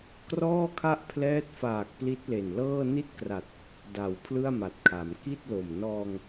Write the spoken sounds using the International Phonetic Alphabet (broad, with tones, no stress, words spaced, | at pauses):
krɔː˥˩kʰa˥˩ʔ pʰlɛː˦˥t̚faː˨˩k̚ pli˦˥t̚le˨˩n lɤː˥˩ ni˥˩t̚kra˨˩t̚ | da˩˦w pʰlɯ˥˩a̯ma˨˩t̚kʰa˩˦m ki˥˩t̚lo˨˩m nɔː˧ŋ